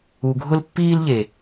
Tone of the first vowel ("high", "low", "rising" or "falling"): low